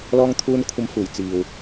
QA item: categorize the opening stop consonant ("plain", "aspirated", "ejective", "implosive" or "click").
aspirated